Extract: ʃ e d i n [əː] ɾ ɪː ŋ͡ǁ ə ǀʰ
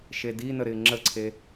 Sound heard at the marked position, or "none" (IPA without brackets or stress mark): ə